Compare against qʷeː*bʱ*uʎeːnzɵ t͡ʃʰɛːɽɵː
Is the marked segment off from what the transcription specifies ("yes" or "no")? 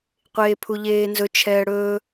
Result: yes